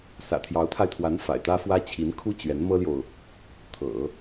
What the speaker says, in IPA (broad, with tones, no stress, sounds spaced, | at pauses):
s ä̰˨˩ t̪ʰ j ɑ˧˥ ʊ̯ t̪ʰ a˧ ɪ̯ t̪ʰ w a˧˥ n f a̰˨˩ ɪ̯ t̪ ä˥ f w ä˥ t͡ɕʰ i˧˥ n kʰ u˥ t͡ɕ ɥ ɛ˧˥ n m ɤ˥ l j o˨ ʊ̯ | t̪ʰ ɤ̰˨˩˦